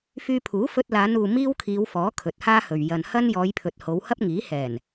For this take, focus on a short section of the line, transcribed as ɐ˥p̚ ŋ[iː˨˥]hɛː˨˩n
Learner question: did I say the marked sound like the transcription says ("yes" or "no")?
yes